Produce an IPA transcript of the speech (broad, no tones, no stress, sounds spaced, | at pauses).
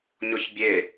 ɲ ɔ ç bʲ e